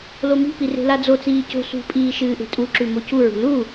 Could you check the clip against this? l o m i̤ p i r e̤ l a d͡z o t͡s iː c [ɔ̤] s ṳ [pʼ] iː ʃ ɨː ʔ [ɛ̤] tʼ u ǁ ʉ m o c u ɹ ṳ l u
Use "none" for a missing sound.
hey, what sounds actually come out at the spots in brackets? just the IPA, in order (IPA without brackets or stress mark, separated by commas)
o̤, pʼ, e̤